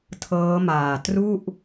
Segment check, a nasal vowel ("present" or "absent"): absent